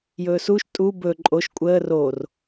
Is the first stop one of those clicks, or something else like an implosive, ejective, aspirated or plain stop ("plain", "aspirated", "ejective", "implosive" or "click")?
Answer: ejective